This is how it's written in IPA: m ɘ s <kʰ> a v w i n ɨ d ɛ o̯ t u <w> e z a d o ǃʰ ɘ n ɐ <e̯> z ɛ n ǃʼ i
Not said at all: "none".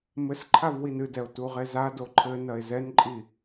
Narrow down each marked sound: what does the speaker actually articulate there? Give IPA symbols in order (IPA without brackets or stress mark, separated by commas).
ǃʰ, ʁ, e̯